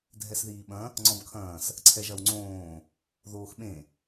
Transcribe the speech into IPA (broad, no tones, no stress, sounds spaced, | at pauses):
dʱ ɛ s ð iː ɓ ɐ̃ | ŋ͡ǀ ɔ̃ b kʰ ɐ̃ː s | ǀʰ ɛ ʒ ɐ w ŋ͡ǀ õː | ð oː x ɓ ẽ